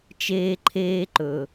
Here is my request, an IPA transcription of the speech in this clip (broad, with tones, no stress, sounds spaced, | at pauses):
t͡ʃ eː˥ ǃʰ eː˥ ǃ ɵ˩